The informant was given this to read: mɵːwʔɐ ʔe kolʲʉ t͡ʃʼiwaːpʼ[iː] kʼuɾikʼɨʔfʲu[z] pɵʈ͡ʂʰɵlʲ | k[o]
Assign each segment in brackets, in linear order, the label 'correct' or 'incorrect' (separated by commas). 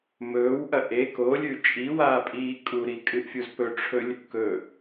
correct, correct, incorrect